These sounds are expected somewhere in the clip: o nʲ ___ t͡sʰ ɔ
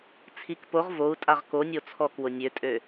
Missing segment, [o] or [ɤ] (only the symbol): o